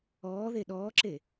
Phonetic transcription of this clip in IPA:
ɔː ð e ɗ ɔː ǁ e

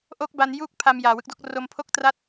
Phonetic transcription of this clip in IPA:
ʔ o˦˥ k̚ b a˧ n j uː˥˩ k̚ pʰ a˧ m j aː˨˩ w ɯ˦˥ k̚ d o˥˩ k̚ r o˧ m pʰ o˥˩ k̚ t r a˥˩ t̚

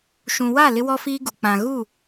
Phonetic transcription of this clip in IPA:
ʃ ũ˨ w a˦˨ l ɪ˦ w ɔ˦ f iː˦ ɡ u˨ k͡p ã˨ ɣ u˦˨

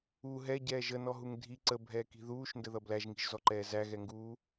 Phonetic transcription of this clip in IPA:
u ɦ ɛ ɟ ɛː ʒ ə n ɔ ɦ u ŋ dʱ i ǀ ə bʱ ɛː k i̤ ð uː ʃ n d ə ð ʌ b l æ ʒ ŋ i̤ ʒ z ɔ ǃ ɛː z æ ɣ ɛ ŋ ɡ uː

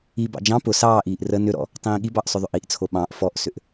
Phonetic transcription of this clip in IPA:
i b ɑ̰ d͡ʒ ɑ̃ p ʊ s ɑː ʔ iː ʔ r ə n ʏ ɾ ɔ̰ | tˤ ĩː ɠ i b ɑ ʔ sˤ ʏ ðˤ ʏ ʔ i ʔ t͡sʰ o ɓ ɑ̃ ʔ f ɔ ʔ s ʏ ʔ

